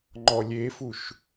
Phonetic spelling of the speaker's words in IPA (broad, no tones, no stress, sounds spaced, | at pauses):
ŋ͡ǃ ɔ lʲ e f u ʃ